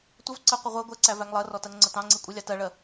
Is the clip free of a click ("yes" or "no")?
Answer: no